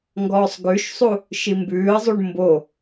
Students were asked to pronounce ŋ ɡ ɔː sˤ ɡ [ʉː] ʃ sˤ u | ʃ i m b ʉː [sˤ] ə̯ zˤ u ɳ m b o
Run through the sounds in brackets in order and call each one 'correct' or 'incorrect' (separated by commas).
incorrect, incorrect